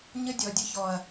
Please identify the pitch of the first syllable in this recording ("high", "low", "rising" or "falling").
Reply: high